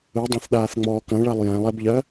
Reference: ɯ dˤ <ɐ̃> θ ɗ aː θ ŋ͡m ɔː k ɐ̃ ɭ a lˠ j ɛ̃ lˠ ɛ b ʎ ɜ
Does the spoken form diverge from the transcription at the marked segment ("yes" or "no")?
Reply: no